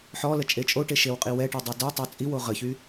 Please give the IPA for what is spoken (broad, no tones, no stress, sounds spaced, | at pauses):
ħ ɔ l ə t͡ʃʼ e t͡ʃʼ o ʈ e ʃ e w qʼ i w ɛ ʈ y dˤ i d œ tˤ œ t͡sʼ i w o ʁ ə ç y